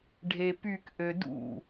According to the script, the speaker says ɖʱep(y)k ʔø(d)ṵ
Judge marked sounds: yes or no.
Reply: yes, yes

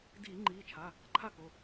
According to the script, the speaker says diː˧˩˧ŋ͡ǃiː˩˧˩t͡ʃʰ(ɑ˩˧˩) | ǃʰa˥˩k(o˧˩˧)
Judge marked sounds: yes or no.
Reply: no, no

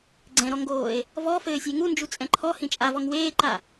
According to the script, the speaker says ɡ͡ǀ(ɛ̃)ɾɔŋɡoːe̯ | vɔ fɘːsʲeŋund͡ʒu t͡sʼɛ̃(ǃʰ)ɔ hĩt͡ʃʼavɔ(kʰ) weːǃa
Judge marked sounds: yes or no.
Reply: yes, yes, no

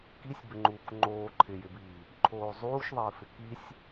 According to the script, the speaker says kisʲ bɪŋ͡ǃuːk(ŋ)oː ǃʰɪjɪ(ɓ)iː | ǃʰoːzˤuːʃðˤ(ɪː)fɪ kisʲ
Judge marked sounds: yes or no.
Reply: no, no, yes

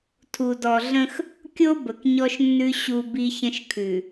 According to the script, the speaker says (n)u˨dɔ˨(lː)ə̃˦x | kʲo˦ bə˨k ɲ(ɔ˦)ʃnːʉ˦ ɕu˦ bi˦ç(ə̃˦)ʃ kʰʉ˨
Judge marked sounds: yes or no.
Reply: no, no, yes, yes

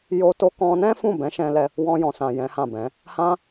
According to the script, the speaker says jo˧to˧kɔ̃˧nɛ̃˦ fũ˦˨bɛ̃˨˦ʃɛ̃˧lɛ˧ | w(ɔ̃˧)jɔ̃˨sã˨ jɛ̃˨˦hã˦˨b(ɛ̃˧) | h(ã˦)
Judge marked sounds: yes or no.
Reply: yes, no, yes

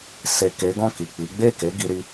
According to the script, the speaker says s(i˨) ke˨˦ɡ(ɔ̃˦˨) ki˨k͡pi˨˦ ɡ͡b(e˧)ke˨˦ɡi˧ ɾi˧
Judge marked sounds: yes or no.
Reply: no, yes, no

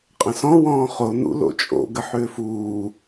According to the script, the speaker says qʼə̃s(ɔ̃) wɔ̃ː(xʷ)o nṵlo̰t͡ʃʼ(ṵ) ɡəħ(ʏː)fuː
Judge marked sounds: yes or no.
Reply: yes, no, no, yes

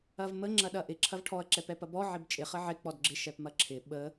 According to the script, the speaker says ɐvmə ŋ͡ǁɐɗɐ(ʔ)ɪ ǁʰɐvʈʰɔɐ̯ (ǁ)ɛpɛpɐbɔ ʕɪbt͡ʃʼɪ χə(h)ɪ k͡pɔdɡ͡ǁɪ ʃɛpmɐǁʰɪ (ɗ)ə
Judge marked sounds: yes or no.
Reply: yes, yes, no, no

